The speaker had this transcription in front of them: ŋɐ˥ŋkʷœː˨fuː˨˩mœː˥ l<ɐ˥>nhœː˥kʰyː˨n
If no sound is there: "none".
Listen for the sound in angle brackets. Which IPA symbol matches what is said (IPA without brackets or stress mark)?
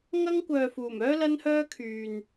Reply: ɐ˥